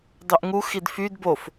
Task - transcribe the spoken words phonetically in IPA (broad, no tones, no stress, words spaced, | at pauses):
dˤyʔŋu xidfyd bof